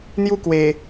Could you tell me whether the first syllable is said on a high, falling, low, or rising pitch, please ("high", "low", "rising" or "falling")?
high